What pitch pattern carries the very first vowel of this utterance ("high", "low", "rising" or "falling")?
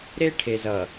high